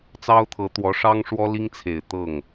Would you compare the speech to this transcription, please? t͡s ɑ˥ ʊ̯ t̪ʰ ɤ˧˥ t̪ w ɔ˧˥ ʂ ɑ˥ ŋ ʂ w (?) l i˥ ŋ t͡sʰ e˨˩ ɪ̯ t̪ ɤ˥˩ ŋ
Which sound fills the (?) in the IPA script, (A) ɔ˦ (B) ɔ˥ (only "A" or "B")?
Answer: B